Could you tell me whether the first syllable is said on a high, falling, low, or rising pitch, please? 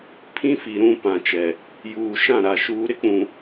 high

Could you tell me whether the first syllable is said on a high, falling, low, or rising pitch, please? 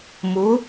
rising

